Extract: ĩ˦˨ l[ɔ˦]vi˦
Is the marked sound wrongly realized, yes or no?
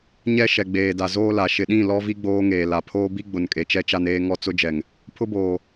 no